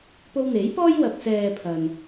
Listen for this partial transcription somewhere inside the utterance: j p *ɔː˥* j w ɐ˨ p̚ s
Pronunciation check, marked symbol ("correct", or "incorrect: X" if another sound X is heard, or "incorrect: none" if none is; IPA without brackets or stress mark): correct